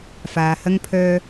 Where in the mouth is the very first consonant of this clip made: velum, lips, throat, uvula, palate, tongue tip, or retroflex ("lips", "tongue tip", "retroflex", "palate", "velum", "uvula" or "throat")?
lips